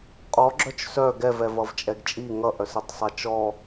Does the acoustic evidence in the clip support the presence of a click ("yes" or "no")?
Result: yes